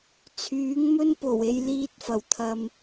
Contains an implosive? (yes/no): no